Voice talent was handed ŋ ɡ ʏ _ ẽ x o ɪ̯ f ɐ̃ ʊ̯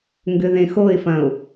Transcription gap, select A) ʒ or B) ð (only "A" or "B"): B